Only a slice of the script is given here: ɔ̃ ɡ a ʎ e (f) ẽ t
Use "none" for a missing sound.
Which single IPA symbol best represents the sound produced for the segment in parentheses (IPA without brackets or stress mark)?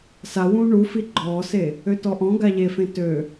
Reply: f